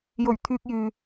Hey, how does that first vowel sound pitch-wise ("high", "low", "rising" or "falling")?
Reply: low